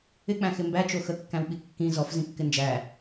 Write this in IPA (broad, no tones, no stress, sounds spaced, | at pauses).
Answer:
ɪ k͡p æ̃ x ɪ m b æ t͡ʃ o x ə kː æ̃ w ɓ i kː ĩ z ɔ f z ĩ kː ɪ n d͡ʒ æ